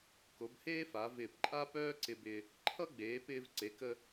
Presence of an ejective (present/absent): present